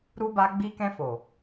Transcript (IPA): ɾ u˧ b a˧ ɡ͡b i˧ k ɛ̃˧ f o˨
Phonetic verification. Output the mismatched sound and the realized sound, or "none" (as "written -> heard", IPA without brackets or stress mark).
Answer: none